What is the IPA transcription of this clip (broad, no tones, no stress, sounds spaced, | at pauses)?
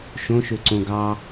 ʃ õ ʃ ø ǀ õ ɡ ɑ